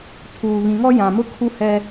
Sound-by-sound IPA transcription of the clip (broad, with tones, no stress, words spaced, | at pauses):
tʰuː˨βĩ˨ŋɔ˦ jã˨mʊ˦kʰu˦ hɛ˦